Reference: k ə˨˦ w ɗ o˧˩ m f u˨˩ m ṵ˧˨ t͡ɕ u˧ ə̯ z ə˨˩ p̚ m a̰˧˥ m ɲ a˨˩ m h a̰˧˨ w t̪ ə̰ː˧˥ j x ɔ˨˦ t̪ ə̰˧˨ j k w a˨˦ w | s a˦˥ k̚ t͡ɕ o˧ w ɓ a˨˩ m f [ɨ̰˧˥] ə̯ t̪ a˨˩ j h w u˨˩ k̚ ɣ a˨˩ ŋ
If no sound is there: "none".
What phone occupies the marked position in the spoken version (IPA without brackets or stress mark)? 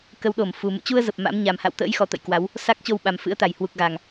ɨ̰˧˥